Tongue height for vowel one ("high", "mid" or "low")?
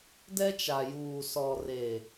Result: mid